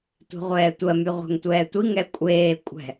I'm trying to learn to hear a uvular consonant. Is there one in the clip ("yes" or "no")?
yes